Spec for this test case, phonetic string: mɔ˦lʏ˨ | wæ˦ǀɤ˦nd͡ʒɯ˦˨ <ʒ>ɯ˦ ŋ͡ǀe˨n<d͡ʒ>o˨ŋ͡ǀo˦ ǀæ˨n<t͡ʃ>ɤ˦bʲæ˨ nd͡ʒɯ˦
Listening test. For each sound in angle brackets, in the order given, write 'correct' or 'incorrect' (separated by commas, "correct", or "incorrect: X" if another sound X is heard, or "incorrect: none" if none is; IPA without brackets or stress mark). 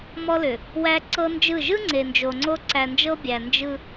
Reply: correct, correct, incorrect: d͡ʒ